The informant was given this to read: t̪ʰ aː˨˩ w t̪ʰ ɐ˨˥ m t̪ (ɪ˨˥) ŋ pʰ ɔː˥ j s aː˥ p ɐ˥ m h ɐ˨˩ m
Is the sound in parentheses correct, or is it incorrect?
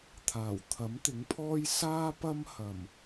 correct